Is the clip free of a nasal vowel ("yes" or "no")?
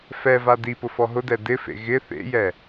yes